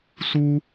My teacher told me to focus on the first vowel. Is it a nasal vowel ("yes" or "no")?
no